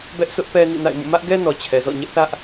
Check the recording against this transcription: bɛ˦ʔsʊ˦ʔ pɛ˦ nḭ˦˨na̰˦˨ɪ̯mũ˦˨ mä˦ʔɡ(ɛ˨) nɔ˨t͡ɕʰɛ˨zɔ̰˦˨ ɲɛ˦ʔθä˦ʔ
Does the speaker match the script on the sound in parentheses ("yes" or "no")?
no